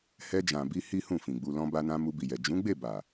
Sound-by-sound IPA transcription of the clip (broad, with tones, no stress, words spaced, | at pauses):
hɛ˧d͡ʒã˨bi˧ hi˦hũ˦˨fĩ˨ɡ͡bu˧ lɔ̃˧ba˧nã˧ mu˧bi˨jɛ˨ d͡ʒũ˨˦ɡ͡be˦˨ba˨